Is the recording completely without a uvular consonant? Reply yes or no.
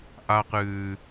no